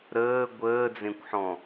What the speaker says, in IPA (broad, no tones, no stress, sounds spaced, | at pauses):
ɾ əː ɡʷ əː d͡z ẽ kʷ ħ ɔ̃